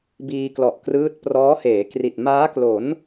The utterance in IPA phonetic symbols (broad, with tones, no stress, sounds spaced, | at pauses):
b iː˧ k l ɔ˨˩ ʔ k r ɯː˦˥ t̚ p r ɔː˦˥ h eː˩˦ k r i˨˩ t̚ m aː˦˥ k l o˩˦ n